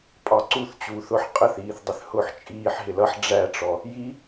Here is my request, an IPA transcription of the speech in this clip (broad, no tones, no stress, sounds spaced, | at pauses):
pʼ ɑ ǀ u θ t͡ɕ uː θ ʊ ħ qʼ ə θ iː θ dˤ ɪ θ h ʊː ħ t͡ʃʼ iː ħ ɦ ɪ l ʌ ħ ɖ͡ʐ æ ʈ͡ʂ ɔ | j i